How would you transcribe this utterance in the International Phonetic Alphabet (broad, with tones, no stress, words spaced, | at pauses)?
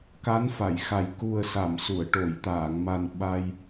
ka˧˥nfa˨˩˨jxa˨˩j ku˨˩ə̯sa˨˩˨msu˨˩˨ə̯ ʈo˨˩˨jt̪aː˨˩˨ŋma˨˩n ɓa˧j